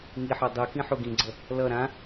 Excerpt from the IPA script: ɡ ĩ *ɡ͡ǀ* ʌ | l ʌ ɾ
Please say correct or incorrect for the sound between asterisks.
correct